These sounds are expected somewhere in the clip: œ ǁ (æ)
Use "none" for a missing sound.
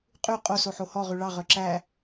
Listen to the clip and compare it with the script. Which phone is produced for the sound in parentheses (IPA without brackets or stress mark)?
æ